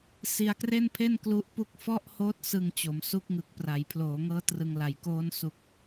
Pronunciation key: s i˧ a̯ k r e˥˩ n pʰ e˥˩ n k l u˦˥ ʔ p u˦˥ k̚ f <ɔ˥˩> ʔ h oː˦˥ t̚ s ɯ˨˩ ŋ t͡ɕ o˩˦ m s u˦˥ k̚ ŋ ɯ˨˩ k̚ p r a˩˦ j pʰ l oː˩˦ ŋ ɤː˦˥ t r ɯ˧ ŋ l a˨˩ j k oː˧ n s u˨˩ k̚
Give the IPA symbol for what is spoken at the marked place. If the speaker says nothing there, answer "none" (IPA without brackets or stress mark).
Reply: ɔ˥˩